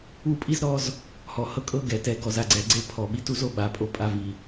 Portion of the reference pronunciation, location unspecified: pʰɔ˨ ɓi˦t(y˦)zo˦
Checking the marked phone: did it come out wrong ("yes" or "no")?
yes